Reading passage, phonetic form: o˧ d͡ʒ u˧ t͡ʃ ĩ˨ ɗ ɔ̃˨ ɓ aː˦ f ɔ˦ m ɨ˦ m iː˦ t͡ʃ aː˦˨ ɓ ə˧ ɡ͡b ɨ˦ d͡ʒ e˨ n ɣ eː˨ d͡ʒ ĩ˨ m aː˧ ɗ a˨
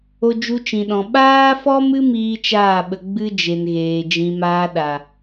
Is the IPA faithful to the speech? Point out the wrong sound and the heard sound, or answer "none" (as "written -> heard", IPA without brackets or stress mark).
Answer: none